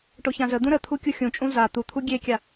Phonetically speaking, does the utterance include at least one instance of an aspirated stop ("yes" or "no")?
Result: yes